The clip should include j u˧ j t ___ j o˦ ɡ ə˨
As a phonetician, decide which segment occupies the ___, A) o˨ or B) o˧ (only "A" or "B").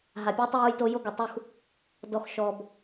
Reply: B